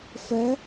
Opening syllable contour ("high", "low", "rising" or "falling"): rising